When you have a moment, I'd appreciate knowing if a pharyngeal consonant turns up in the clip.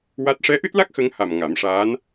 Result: no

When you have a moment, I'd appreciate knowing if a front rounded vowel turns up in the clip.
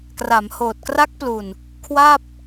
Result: no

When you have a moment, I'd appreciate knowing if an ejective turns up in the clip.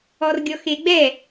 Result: no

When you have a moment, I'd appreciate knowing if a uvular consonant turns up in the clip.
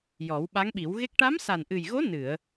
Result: no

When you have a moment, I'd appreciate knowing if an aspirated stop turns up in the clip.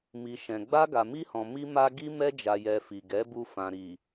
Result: no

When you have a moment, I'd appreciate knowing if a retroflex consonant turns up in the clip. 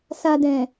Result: no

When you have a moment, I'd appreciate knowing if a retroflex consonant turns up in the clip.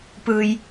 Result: no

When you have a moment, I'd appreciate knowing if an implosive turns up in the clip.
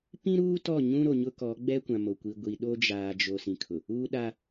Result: yes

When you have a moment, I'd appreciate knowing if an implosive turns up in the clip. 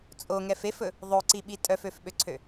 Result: yes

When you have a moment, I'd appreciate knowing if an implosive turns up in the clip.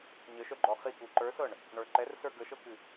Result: no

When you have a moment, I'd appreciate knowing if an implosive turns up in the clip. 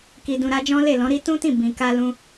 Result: no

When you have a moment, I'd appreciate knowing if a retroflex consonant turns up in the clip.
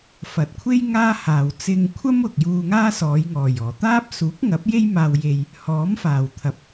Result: no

